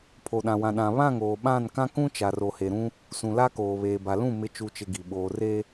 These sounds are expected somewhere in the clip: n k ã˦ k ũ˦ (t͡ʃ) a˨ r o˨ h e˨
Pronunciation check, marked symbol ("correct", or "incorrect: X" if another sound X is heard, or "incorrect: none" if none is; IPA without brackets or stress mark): correct